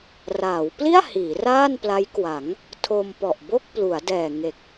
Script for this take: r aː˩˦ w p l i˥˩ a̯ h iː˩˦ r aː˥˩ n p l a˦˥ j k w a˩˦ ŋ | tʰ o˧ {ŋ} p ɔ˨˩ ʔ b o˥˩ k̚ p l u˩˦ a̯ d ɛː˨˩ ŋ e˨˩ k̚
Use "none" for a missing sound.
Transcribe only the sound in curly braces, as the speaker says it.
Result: m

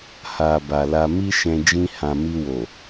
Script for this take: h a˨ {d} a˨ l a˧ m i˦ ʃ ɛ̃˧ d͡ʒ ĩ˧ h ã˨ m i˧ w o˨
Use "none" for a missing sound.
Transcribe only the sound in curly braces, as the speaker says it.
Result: b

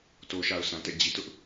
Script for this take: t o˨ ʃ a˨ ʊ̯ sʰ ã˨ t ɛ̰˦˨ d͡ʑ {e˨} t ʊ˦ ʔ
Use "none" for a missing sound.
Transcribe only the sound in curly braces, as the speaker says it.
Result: i˨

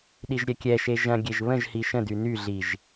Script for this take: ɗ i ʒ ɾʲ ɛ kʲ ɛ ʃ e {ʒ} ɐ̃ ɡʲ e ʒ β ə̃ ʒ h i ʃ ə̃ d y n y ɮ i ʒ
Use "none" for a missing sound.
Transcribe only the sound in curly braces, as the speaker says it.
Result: ʒ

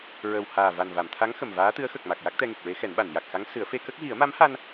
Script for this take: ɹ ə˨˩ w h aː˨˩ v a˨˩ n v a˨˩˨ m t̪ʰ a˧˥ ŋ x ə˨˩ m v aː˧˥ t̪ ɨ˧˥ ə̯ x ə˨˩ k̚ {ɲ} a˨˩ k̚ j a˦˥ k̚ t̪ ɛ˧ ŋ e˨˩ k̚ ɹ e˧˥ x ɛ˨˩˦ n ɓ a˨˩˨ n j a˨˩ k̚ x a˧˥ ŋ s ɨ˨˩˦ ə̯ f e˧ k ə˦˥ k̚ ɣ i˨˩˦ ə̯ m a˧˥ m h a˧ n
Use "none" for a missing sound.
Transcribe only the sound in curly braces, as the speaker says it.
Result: m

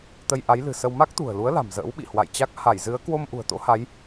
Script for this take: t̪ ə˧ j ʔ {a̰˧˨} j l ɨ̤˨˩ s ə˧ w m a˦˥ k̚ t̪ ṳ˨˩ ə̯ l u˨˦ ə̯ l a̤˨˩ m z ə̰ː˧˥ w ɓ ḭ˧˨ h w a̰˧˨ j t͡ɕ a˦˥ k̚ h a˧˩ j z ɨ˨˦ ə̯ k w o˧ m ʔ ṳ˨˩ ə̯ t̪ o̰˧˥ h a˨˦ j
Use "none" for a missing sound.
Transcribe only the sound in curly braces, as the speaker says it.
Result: a˨˦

